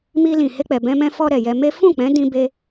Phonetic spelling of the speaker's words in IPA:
m i˧ l ĩ˨ h e˧ k͡p ɛ˨ b ɛ̃˧ m ɛ̃˧ f ɔ˧ ɾ ɛ˨ j ɛ˧ m e˦ f ũ˦˨ k͡p ɛ̃˨˦ d ĩ˧ b e˧

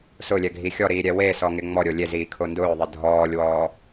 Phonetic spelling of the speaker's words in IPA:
s ʊ lʲ ɛ ɡʱ i xʲ ɔ ɾ iː ɾʲ ɛ w e s ɔ ŋ ɪ ŋ͡m ɔ ɾʲ o lʲ e z iː kʰ o n d ʊː ðˤ ɪ dʱ ɔː lʲ w ɔː

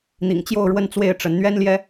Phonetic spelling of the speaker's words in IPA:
n̪ ḭ˨˩ ŋ t͡ɕ j o˥˧ ʊ̯ ɻ w ə˥˧ n t͡s w e˥˩ ɪ̯ ʈ͡ʂ ə˧˥ n n̪ ɥ ɛ˥ n l j ɛ˥

